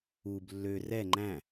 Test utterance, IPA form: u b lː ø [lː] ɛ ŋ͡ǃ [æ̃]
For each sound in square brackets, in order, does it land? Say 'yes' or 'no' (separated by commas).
no, yes